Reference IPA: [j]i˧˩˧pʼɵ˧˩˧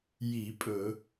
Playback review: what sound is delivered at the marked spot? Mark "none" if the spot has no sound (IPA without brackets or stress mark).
j